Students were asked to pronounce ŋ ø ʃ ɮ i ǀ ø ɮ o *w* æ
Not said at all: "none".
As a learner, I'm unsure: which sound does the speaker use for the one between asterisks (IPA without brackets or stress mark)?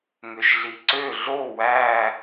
w